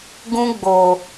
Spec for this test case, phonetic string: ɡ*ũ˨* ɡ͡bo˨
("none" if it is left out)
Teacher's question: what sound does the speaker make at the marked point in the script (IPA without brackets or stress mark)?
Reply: ũ˦